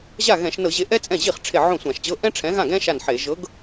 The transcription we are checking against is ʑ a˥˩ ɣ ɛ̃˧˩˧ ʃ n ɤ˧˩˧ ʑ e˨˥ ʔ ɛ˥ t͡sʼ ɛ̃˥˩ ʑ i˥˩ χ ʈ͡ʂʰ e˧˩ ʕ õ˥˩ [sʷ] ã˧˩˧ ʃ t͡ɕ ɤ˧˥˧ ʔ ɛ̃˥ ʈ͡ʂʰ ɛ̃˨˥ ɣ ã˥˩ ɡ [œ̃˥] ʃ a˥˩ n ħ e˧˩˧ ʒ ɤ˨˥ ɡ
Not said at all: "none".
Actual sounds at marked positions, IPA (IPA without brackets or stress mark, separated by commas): sʷ, ɛ̃˥